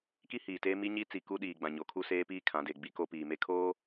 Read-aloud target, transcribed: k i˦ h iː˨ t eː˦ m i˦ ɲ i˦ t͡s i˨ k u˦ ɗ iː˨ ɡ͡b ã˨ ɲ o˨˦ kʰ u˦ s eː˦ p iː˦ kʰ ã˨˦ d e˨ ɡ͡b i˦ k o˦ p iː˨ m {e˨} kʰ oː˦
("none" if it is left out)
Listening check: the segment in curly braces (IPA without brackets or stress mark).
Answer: e˦